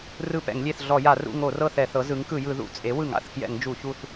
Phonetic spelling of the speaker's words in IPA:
r ɯ˦˨ p ɛ̰˧˩˧ ŋ lʲ e˦˨ θ ɮ ɔ˧˩˧ j a˧˩˧ r ṵ˦˨ ŋ o˧˩˧ r ɤ˦˨ θ ɛ˧˩˧ θ ɤ˩˥ z ɯ˩˥ ŋ k ɯ˧˩˧ j ɯ˧˩˧ ð ṵ˧˩˧ t͡sʼ e˩˥ w ɯ˧˩˧ ŋ a̰˦˨ θ k j ɛ̰˧˩˧ ŋ d͡ʒ u˧˩˧ ç u˦˨ θ

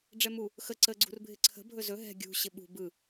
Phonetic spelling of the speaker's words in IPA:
ɖ͡ʐ ɛ m u | x ə ǀ ə ɡ͡ǀ ṳ r bʱ ɪ ǀʰ ə̤ bʱ ɵ z ɵ ɦ ɛ̤ ɡʲ ṳ ɕ ɪ ɓ ṳ b ɯ

